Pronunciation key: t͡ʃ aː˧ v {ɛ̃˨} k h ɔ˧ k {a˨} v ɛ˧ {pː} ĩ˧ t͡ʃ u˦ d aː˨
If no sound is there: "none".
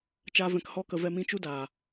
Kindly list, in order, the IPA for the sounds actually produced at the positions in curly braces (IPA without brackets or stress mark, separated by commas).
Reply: ɛ̃˨, ə˨, m